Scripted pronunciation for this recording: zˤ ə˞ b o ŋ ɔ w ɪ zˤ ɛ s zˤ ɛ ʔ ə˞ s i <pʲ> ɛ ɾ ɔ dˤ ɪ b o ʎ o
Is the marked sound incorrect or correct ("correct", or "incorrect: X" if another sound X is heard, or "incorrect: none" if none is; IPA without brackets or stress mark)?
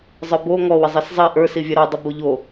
incorrect: vʲ